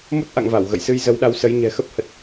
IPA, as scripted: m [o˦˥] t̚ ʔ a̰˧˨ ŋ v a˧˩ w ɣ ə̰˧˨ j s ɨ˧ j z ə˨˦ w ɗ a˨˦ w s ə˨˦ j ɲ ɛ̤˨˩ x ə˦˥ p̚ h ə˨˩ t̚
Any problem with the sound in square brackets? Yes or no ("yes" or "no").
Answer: no